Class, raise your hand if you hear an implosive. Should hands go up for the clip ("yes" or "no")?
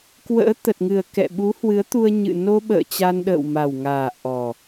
yes